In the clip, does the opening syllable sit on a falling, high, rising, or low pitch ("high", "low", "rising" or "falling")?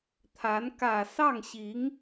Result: rising